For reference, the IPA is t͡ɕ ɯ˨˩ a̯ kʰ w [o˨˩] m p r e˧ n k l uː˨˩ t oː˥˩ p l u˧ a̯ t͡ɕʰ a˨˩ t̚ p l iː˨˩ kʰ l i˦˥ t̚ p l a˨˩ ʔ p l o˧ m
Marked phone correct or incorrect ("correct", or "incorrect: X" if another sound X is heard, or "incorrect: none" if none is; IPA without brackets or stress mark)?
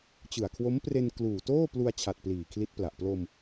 incorrect: o˦˥